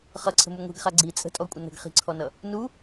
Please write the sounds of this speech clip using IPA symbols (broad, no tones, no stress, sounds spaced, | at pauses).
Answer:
χ ʌ ǀʰ ə̤ m u ŋʷ i̤ ɡ χ a ɡ͡ǀ i t͡sʼ ə̤ tʼ ɔ kʷʼ ə n ə̤ ɡ χ i̤ ǀʰ ɔ n ʌ | n u